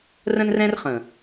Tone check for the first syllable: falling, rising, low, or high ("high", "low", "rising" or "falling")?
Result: high